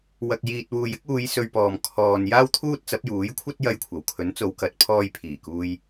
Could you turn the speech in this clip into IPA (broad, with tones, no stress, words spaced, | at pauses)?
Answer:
wɐ˨k̚ jiː˨t̚wuː˨jɪ˥k̚uː˨˧j sɵ˧ɥpɔː˨m kʰɔː˨n jaː˥wt̪ʰuː˥t̚t͡sɐ˨˥p̚ juː˨˥jkʷʰɐ˥t̚ jɐ˧jkʷʰɐ˨˩w kʰɵ˨˥nt͡so˨˧wkɐ˨˥t̚ pʰɔː˧jpʰiː˨˩kuː˧j